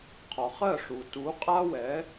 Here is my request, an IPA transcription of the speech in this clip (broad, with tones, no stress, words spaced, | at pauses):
qʰɒ˩χɜ˥˩ʂu˩ tu˩˥qʼa˥ wɛ˩˥